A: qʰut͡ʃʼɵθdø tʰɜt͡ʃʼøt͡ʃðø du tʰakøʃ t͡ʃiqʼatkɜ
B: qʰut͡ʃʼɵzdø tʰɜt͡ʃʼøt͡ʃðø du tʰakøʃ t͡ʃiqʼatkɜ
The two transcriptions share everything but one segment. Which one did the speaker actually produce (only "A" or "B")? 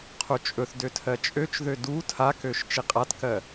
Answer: A